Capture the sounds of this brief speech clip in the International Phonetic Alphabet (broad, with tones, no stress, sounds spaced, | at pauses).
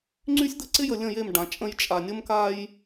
ŋ͡ǀ y˦ sʲ d̪ ə˦ ǀ ɪ˦ j ə˨ lʲ ə̃˦˨ j e˦˨ m ɖ ã˨ t͡ʃʼ ə̃˦ j t͡ʃʼ a˨ nʲ ə˦ m k a˦ j